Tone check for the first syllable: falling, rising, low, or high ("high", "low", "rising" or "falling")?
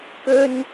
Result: high